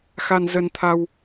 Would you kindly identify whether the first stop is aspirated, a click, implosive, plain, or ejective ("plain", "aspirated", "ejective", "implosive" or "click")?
aspirated